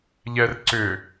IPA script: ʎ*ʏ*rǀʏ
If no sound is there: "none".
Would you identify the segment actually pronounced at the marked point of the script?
ɛ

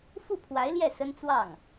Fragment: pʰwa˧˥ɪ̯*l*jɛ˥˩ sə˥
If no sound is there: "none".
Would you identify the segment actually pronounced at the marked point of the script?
l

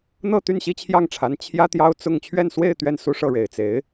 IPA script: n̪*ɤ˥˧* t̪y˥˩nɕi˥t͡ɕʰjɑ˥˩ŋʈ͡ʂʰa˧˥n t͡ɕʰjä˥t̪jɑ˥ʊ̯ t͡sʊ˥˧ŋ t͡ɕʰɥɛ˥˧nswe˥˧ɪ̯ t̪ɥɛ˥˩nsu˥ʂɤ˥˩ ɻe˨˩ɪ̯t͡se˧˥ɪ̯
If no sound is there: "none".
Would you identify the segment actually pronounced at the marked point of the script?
ɤ˥˧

